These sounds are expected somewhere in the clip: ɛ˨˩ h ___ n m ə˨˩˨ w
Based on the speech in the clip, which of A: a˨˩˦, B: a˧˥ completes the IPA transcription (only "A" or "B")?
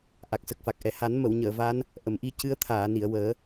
A